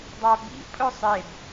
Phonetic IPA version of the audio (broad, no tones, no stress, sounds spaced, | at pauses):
dˤ a b ḭ pʼ ɵ sˤ e b